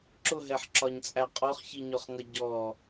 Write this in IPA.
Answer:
ǁ ʊ ɦ ɛ ħ ǁ ɒ ɲ t͡sʼ æ qʼ ɔ χ ç i ɲ ɔ χ ŋ ʌ ɟ ɔ

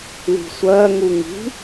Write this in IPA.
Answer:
l i̤ sʷ ɜ ŋ u ŋ i̤

